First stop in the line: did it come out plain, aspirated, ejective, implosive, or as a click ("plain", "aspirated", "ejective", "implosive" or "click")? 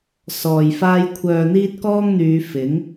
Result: aspirated